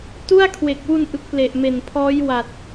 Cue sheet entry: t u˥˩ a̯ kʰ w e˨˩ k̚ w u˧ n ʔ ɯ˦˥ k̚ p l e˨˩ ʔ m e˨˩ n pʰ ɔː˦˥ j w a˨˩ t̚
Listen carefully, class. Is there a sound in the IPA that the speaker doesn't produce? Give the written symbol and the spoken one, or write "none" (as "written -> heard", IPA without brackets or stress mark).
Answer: none